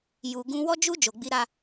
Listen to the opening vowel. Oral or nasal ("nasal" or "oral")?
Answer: oral